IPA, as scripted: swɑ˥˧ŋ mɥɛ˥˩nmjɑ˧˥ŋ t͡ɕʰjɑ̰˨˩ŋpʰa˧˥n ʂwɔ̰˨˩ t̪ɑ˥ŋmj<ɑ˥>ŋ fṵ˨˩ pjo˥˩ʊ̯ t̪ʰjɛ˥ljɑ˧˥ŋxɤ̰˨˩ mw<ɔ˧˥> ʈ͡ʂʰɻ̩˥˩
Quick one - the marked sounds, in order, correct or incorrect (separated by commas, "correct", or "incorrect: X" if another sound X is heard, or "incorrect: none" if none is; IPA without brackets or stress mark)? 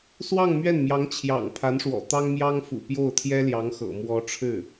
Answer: correct, correct